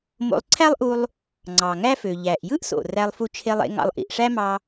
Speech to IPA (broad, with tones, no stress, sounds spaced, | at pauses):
m o̰˧ lˠ ǀʰ æ˥ lˠ ʔ u˧ lˠ | ŋ͡ǀ ɑ˩ ŋ æ˥ f ø˩ ʎ æ˩ ʔ j ɯ˥ ʔ s o̰˩ r æ˧ lˠ f u˧ t͡ʃʰ e˧ lˠ ḛ˧ ŋ ɑ̰˧ lˠ ʔ ḭ˩ ʔ ʂ æ˥ m ɑ˧